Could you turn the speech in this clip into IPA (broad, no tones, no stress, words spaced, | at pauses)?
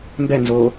mbɛnzoː